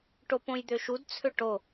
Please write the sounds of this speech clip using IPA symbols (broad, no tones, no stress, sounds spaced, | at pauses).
ʈ o p õ j d̪ ø ʃ u d t͡sʰ ø ʈ o